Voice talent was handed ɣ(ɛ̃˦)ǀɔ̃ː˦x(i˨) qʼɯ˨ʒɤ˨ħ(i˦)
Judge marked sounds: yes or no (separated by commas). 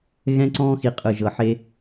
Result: yes, yes, no